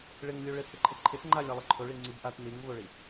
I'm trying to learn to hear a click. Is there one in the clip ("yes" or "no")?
yes